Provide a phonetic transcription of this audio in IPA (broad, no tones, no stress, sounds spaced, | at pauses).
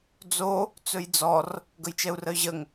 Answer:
d͡z o | t͡s ɵ j d͡z ɔ r | ɡ ə j t͡ʃ ɛ u̯ r ə y̯ ʑ ə ŋ